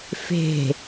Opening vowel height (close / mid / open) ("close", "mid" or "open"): mid